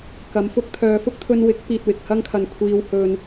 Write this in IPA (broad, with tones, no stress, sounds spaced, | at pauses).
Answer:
k ɐ˨˧ m f ʊ˥ k̚ t̪ʰ œː˧ f ʊ˥ k̚ t̪ʰ ɵ˧ n w ɪ˨˥ k̚ p iː˨ t̚ w ɪ˨ k̚ h ɐ˥ ŋ kʰ ɐ˨ n kʷʰ iː˧ w h ɵ˧ n